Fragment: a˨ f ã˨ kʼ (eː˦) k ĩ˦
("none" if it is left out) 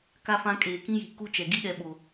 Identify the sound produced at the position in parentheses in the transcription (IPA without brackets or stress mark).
eː˨